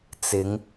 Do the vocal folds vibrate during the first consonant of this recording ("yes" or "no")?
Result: no